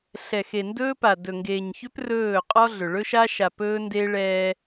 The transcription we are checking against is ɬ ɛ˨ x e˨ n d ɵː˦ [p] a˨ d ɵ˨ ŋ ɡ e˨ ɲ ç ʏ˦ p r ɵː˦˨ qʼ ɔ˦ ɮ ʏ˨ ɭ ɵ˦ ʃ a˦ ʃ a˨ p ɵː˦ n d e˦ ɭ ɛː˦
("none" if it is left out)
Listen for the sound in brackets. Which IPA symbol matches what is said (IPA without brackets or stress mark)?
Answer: p